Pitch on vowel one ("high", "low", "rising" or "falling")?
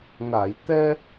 low